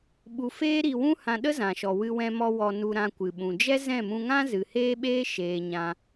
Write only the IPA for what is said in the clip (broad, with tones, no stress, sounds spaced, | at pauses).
ɓ u˧ f eː˦ ɾ i˧ w ũ˦ h ã˧ ɗ ə˦ z ã˨ ʃ ɔ˨ w ɨ˧ w ɛ̃˧ m ɔ˧ w ɔ˧ n u˧ ɾ ã˧ kʷ ɨ˨ ɓ ũ˨ d͡ʒ ɛ˦ z ɛ̃˦˨ m ũ˧ ŋ ã˦ z ɨ˨ h eː˦ ɓ eː˦ ʃ eː˨ ɲ ã˧